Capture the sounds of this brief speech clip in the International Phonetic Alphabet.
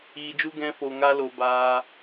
iː˧d͡ʒu˦ ɡɛ̃˦fo˧ŋa˦lo˧ baː˧

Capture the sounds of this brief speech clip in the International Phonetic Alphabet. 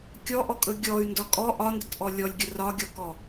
kʲɔʔɔkʼɵ ɡʲɔy̯ndɒ kʼɔ ʔɒndətʔɔ lʲɔlʲɡʲə rɒɡʲɔkɔ

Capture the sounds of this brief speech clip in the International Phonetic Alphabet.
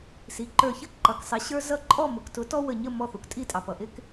si˩˧ǃə˞˧˩çə˦ ǃʌ˩˧ksˤɪ˩˥ɕə˞˦ zʌ˦ ǃʼɔ˥˩mʊ˩˧ktʊ˩˥tɔ˦ wə˧˩ɲə˥˩ mɔ˥˩θu˩k tʼi˥˩tʼɑ˩ pʌ˩ʔɪ˦k

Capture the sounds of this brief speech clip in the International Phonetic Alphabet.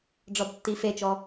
ɖ͡ʐɔdtːifet͡ʃɔ

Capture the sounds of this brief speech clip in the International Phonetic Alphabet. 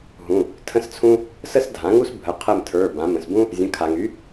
ɦũ˩˧˩ | tʰə̃˥st͡sʰũ˥ | sə˥sdʱã˩˥ŋu˥sbʱə˩˧˩ qʰə˦˨mtʰə˞˩˧˩ bã˩˧mə̃˩sbũ˥ | zʲə̃˩˧˩kʰa˩ŋy˩˥

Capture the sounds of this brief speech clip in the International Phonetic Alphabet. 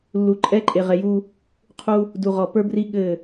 lːu˨ǃʼɛ˦ǃʼe˨ ʁɛ˨ju˦ | qʰu˦ | du˨ʁɔ˨pə˞˦bri˦ ɠɘ˦˨

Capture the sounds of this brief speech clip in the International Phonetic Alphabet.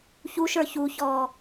çuʃ ə˞çuçɔː

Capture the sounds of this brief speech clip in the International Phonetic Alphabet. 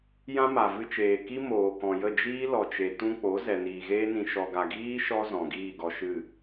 jã˦ma˨vɨ˧t͡ʃeː˨ ki˦moː˨kɔ̃˨jə˦˨ d͡ʒiː˦lɔ˨t͡ʃe˨ tũ˧ k͡po˨˦ zɛ˨niː˨ɣeː˦nĩ˧ ʃɔ˧ɡa˧ ɡiː˦ ʃɔ˦ zɔ̃˨ɡiː˦˨ɡɔ˧ʃɨ˦˨

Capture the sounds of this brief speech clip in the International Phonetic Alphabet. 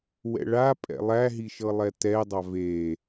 wɛ̰ɭapʼɛ̰ lˠæɦiʃɤ lˠɛtɛdˤɑ veː

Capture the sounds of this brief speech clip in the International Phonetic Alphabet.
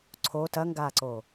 ǀʰo tɐŋɡaːǀo

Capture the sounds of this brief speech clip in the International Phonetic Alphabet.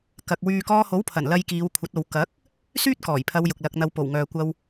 kɐ˧k̚ wyː˨kɔː˧ho˨˥wpʰɐ˨˩n lɐ˧jkiː˨˧w kʷʰɐ˨˥t̚o˨˧w kɐ˨˥k̚ | syː˥t̚kɔː˨˩jpʰɐ˨˧w jʊ˨k̚lɐ˧k̚n̪ɐ˧w po˨˩wŋœː˨kʷɐ˧w

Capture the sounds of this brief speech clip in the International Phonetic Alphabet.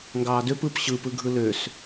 ŋɡɑːdøp ɯp ɕɯpɯɡʱɯ løs

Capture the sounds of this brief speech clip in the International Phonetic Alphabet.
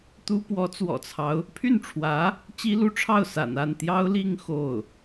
t̪u˥ pwɔ˧˥t͡swɔ̰˨˩t͡sʰɑ˦ʊ̯ | pʰy˥˩nʈ͡ʂʰwä˧˥ | t͡ɕi˥lu˥ʈ͡ʂʰɑ˥˩ʊ̯ sa̰˨˩n a˥˩nt̪jɑ˥ʊ̯li˥˧ŋ xo˥˩ʊ̯

